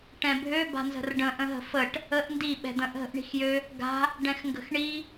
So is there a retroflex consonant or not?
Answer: yes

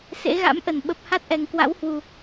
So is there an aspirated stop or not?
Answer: no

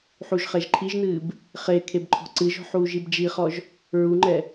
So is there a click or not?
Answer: yes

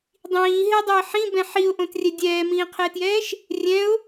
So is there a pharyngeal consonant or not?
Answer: yes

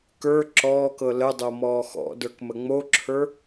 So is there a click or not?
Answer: yes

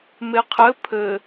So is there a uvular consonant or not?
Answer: yes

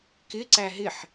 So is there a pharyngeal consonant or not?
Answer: yes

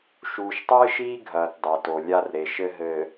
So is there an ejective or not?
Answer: no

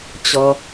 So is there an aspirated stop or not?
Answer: no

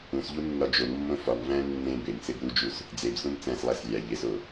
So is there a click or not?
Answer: no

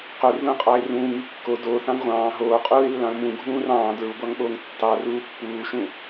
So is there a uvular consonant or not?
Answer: yes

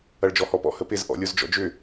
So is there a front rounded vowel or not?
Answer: yes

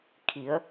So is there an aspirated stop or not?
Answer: yes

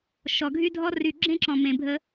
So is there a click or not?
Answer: yes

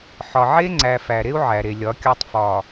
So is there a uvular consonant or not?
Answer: no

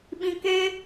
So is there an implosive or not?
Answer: yes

